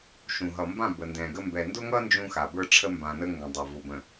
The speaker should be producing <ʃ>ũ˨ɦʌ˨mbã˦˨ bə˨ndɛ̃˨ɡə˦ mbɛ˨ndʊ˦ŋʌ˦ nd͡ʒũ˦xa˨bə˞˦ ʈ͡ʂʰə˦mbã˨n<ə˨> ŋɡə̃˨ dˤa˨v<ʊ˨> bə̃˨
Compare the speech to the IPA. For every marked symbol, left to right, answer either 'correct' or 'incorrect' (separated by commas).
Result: correct, incorrect, correct